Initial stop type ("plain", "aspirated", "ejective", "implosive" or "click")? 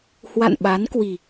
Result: implosive